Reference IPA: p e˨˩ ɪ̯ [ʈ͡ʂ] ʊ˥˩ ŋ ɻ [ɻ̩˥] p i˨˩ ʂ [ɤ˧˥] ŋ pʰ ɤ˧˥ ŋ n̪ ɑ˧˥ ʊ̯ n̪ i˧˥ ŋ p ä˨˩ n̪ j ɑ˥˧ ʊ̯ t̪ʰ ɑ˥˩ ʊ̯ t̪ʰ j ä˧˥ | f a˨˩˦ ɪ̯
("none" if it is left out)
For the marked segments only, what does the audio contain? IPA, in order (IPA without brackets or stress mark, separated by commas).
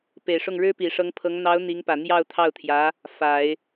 ʂ, ɻ̩˥, ɤ˧˥